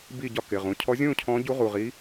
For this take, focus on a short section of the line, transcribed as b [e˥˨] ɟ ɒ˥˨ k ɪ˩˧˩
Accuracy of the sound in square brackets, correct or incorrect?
incorrect